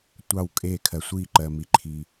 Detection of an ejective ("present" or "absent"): present